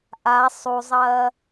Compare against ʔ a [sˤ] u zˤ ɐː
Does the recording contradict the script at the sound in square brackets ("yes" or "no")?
no